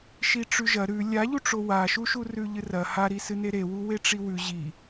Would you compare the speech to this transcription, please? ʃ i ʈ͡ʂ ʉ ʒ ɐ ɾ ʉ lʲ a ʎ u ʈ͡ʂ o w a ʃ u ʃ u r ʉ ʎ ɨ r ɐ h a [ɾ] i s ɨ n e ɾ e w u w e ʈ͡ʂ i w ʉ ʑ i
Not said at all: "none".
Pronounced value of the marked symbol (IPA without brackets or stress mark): ɾ